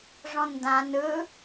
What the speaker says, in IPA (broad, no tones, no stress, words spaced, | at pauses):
ʐɔ̃ndã nɯ